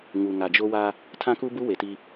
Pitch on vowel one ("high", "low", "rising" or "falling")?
low